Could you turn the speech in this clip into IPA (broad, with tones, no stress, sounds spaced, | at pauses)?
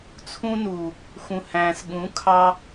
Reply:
t͡sʰ ũ˧ n uː˨ | x ũ˨ h æ̃ː˨ s ɠ ũ˨˦ kʰ ɑ˧